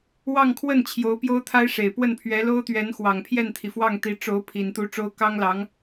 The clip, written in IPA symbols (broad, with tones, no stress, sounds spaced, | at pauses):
w ɑ˥˧ ŋ kʰ w ə˥˩ n t͡ɕʰ j o˧˥ ʊ̯ p j o˥ ʊ̯ t̪ʰ a˥ ɪ̯ ʂ e˨˩ ɪ̯ p w ə˥˩ n pʰ ɥ ɛ˧˥ l o˥ ʊ̯ t̪ ɥ ɛ˧˥ n x w ɑ˨˩ ŋ pʰ j ɛ˥˩ n t̪ʰ i˩ f w ɑ˥˩ ŋ t̪ i˧˥ ʈ͡ʂ o˧˥ ʊ̯ pʰ i˨˩ n t̪ u˧˥ ʈ͡ʂ o˥ ʊ̯ k ɑ˥ ŋ l ɑ˧˥ ŋ